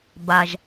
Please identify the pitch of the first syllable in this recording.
low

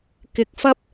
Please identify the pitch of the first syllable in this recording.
rising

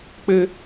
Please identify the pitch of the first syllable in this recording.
high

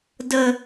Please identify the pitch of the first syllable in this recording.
high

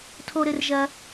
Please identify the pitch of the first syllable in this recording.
high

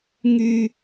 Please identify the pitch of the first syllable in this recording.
high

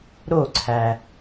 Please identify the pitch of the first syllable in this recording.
falling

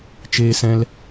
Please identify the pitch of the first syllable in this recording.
high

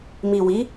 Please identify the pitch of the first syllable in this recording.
low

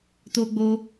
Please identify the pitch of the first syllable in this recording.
high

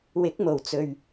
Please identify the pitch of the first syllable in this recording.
rising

